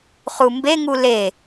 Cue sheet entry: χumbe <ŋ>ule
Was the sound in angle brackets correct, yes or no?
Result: yes